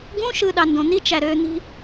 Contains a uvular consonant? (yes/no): no